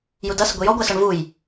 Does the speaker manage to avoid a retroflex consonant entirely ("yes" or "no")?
no